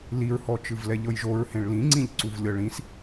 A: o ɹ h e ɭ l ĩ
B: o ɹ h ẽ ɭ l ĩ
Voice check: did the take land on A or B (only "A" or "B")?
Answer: B